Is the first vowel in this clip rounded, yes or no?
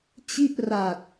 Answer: no